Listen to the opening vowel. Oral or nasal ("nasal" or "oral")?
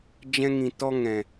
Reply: nasal